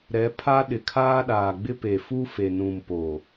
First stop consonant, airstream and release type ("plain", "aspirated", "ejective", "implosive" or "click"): aspirated